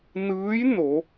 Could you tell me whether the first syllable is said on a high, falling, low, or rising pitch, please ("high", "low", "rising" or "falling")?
rising